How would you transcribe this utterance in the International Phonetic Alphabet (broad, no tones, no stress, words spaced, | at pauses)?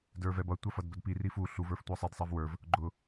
də˞vɛbʌ tʷɑfʌdbədpi rifu ɬu və˞ftʷɪə̯sˤid sˤɛvwə˞v | ɡ͡ǃʊ